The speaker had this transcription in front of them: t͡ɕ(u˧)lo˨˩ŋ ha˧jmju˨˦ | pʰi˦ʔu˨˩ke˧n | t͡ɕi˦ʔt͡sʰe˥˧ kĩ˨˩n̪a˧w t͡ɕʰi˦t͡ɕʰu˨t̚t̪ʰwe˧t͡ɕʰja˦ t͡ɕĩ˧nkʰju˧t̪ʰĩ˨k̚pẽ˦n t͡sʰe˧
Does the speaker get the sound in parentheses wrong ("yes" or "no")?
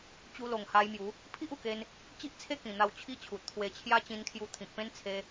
no